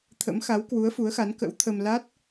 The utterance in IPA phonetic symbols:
t̪ʰə̰˧˥mxa˨˦wkwu˨˦ə̯ fu˨˦ə̯xa˨˦nkə̰˧˥wt̪ʰə˧m la˦˥t̚

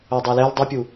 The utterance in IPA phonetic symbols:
odˤolɛl dˤupʲu

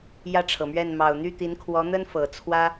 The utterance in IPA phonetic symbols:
jä˥˩ʈ͡ʂʰɤ˩mɥɛ˥˩n mɑ˨˩ʊ̯n̪y˥˩t̪i˧˥n kʰwɔ˧˥n̪ə˥n fɤ˨˩t͡sʰwä˥

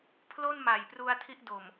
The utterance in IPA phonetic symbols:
pʰlo˥˩nma˨˩jpru˧a̯ tʰi˥˩ʔdo˨˩m

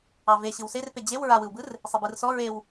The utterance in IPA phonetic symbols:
ɑveɕɯw serpe d͡ʑew ɹawɯwbɯr | sˤebɯrsɔ ɹew

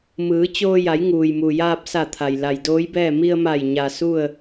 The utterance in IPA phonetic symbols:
mɯː˩˧t͡ɕoː˧ja˩˧j ŋuː˩jmu˩jaː˧p̚sa˧˩ t̪ʰa˩j la˩jdoː˧˥jbɛː˥˨ mi˧ə̯ma˧˩j ɲa˩ su˥˨ə̯

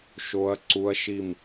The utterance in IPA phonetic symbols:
ʃo˦˥ɐ̯ ǀu˦˥ɐ̯ʃi˥˧m

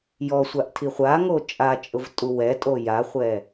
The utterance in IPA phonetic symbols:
jɔsʷaʔtʰi χʷaŋo t͡ʃʼat͡ʃʼʊvtʼu wɛtʼo jaχʷɛ

